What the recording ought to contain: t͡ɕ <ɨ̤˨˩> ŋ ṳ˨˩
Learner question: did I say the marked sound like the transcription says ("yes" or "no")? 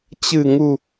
yes